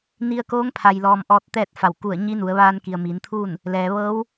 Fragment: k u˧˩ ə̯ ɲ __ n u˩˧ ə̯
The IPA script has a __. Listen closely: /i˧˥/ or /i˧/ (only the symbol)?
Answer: i˧˥